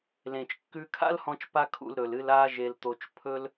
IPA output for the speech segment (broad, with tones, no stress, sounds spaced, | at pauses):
l ẽ˩ t͡ʃ kː ʉ˧ kʰ a̰˥ l h ɔ̃˧ t͡ʃ p a˥ kʰ ṵ˧ l ɾ ɵ˩ l ɨ˧ l a˥ ʒ e˧ l t̪ o˧ t͡ʃ pʰ ɵ˥ l